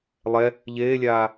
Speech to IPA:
lˠ ɛ | ʎ eː lʲ aː

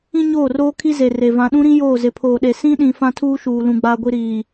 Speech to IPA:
ĩ˦ ɲ oː˦˨ r oː˦ kʰ i˦ z e˨ r e˨ v ã˨ ɗ ũ˦ ɾ ĩ˦ j oː˦˨ z ɪ˨ pʰ oː˨ ɗ e˨ s ĩ˦ ɗ ĩ˨ f ã˦ tʰ uː˦ ʃ uː˨ l ũ˨ ɡ͡b aː˦ ɡʷ i˦ ɾ iː˨

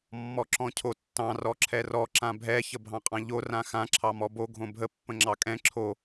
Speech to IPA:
mː ɔ ǁ ɔ̃ cʰ o tː ɑ̃ r ɔ ǁʰ ɛ r ɔ ǁ ã bʱ ɛ ç ə bʱ ɑ̃ qʼ ɑ̃ ʎ o r ã x ã ǁʰ ɑ m ɔ b o ɡʱ õ bʱ ə pː ə̃ ŋ͡ǁ ɑ kʼ ɛ̃ ǁʰ o

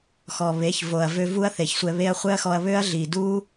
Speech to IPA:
x ɔ˨ β e˨˦ ç v o˨ ɐ̯ v ø˧ v u˦ ɐ̯ θ e˨ ç sʷ ɛ˧ β e˦ ɐ̯ χʷ ɛ˦ ɐ̯ x ɔ˧ ɐ̯ β ø˦ ɐ̯ ɮ i˨ d u˦

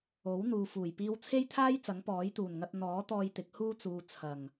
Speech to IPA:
o˨˥ w n̪ uː˨ f uː˨˩ j p iː˧ w t͡sʰ e˥ j t̪ʰ aː˥ j t͡s ɐ˨˥ ŋ p ɔː˨˥ j t̪ uː˨˩ n ŋ ɐ˧ t̚ n̪ ɔː˨˥ t̪ ɔː˧ j t̪ ɪ˨˥ k̚ h uː˥ t͡s uː˨ t͡sʰ ɐ˨˩ ŋ

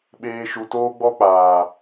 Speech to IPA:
ɓ eː˧ ʃ u˨ t oː˦ ɡ͡b ɔ˦ k͡p aː˨

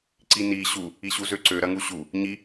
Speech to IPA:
ǀ i n i ɕ u | i ɕ u z ø ǀ ø ɾ ɐ ŋ u ɕ u | ɲ i

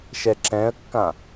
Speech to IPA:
ʃ ɛ ǁ ɛ̃ ə̯ kː ã

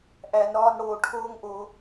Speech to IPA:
ʔ æ˧ n ɾ ɒː˦ n ɽ oː˧ ʈʰ oː˦ ŋ ʔ o˧

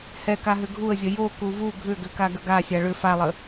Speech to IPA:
h ɛ k a ɦ ʏ ɡʱ u ə̯ zʲ ə j o k u v u ɡʱ ʏ ɡ ʏ k a ɡ ə ɡ a sʲ a ɭ ʏ f a lˠ ə

